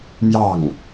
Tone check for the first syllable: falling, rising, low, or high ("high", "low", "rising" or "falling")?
falling